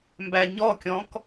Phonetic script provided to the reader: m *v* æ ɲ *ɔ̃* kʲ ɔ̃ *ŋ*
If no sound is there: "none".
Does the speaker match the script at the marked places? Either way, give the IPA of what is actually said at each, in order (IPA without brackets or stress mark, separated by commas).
b, ɔ, k